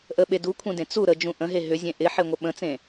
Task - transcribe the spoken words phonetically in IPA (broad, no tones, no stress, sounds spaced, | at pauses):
ʔ ə ɓ e d u kʷʰ ẽ d ẽ t͡s u ɾ ə d͡ʒ ũ ʔ ə̃ ɦ e ɦ ʏ zʲ ẽ ʔ ɪ ħ e ŋʷ ə ɓ ə̃ t͡s ẽ